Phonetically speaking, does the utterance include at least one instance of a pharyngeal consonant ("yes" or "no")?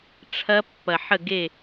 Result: yes